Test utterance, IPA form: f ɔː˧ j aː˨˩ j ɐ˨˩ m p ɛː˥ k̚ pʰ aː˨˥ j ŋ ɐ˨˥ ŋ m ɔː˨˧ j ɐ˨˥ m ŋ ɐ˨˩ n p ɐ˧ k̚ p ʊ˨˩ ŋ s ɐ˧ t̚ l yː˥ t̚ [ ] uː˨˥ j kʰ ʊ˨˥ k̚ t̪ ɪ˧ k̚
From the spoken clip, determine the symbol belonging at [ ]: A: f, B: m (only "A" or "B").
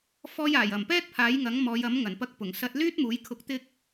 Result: B